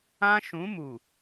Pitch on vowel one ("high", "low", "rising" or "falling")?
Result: high